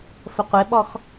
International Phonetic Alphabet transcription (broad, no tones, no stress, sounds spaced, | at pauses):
f ə qʷ ɪ ɓ ɔ x